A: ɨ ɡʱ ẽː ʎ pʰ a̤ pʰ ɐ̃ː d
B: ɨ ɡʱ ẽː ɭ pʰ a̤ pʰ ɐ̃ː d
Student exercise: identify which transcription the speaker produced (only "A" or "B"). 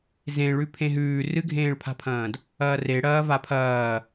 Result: B